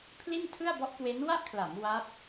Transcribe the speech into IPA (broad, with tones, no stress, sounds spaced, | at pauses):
pʰ l i˥˩ n tʰ ɯ˥˩ a̯ b ɔ˦˥ ʔ k w e˦˥ n w a˥˩ ʔ kʰ l a˩˦ m w a˦˥ p̚